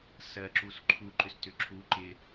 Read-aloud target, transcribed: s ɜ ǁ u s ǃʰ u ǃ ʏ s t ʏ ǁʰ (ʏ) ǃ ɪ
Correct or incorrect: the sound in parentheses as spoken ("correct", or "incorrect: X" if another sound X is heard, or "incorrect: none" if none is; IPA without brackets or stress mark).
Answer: incorrect: u